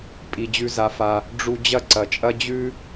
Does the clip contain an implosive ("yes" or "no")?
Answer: no